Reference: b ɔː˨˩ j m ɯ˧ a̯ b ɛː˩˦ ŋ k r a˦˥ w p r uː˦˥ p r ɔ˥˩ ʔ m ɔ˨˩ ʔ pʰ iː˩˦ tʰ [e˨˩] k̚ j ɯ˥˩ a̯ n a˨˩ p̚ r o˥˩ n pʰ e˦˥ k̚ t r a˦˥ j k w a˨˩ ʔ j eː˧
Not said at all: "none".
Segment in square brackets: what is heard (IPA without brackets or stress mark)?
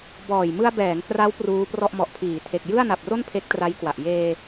e˨˩